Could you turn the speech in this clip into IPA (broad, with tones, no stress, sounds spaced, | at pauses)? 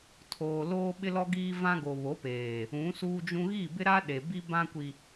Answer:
tʰ oː˨ l oː˦ ɓ ɪ˦ l ɔ˦ ɡ iː˦ v ã˦ ɡ o˨ β o˨˦ p eː˨ | ũ˨˦ s uː˦ d͡ʒ ũ˦ ɣ i˦˨ b ɪ˦ ɾ a˦ ɗ e˨ b i˦ b ã˦ kʷ i˨